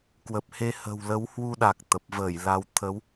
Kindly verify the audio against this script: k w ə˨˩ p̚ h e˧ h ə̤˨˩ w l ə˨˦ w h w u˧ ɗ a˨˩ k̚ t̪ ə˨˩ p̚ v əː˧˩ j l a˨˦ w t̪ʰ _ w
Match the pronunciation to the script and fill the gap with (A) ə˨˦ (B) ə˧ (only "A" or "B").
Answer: A